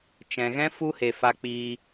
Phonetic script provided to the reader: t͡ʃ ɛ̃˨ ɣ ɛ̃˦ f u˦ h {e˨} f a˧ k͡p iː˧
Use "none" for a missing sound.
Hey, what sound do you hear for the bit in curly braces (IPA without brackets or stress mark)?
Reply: e˨